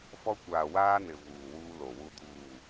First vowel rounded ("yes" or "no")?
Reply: yes